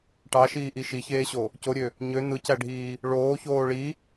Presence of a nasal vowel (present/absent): absent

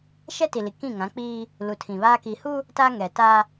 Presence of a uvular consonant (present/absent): absent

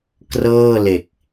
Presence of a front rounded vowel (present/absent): absent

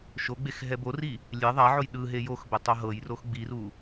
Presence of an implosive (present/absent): present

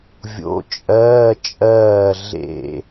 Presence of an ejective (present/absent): present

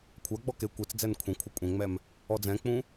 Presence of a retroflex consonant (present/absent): absent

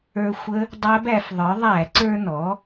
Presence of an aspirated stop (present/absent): absent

